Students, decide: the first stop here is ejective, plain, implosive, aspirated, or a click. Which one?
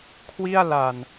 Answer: aspirated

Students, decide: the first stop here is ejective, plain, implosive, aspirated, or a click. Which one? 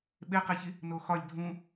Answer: implosive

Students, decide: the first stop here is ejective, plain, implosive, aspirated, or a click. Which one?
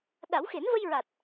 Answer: implosive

